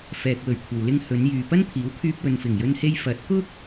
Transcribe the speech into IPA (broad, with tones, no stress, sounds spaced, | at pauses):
f ɛː˨ k̚ w ɵ˨˩ ɥ kʷʰ ɐ˨ w l ɪ˧ ŋ h ɵ˨˧ n j yː˨ p ɐ˥ n t̪ʰ iː˨˥ w kʰ yː˧ p̚ w ɵ˨ n f ɪ˨˩ ŋ j ɵ˧ n h e˧ j f ɐ˨˥ t̚ k ʊ˥ k̚